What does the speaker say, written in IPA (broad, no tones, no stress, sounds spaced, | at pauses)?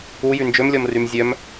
u j y n d͡ʒ ø m lʲ ɔ m r y m zʲ œ m